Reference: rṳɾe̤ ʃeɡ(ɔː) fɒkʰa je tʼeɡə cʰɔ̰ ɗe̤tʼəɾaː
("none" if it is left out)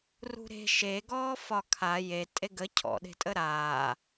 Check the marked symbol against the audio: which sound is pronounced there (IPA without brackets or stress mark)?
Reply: ɔː